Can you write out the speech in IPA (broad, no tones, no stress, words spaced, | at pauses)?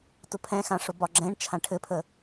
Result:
tʊpʰɛ̃xã ʂʊbɒɡ͡ǁɛ̃ɳt͡ʃʰã ʈʰɘpʰə